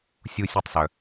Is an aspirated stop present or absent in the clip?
absent